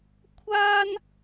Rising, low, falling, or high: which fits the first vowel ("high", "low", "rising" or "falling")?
high